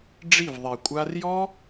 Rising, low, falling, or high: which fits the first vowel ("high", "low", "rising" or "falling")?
falling